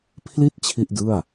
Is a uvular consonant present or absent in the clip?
absent